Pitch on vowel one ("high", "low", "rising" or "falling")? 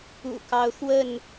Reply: low